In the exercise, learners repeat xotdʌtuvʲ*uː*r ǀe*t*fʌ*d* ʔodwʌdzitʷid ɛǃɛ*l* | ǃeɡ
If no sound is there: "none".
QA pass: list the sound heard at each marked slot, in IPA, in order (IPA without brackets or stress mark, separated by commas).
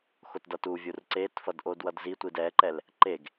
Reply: u, t, d, l